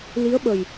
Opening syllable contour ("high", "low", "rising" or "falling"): rising